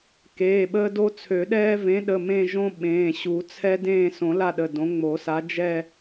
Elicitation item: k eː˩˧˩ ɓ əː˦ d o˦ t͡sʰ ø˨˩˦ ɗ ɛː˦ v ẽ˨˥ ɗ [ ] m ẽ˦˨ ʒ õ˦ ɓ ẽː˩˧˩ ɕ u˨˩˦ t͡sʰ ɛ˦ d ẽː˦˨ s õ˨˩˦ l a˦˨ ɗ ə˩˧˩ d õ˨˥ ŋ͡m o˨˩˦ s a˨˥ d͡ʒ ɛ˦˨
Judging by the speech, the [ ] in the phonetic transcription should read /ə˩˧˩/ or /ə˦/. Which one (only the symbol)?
ə˩˧˩